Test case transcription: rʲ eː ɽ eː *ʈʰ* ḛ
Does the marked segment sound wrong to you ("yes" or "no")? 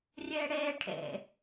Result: no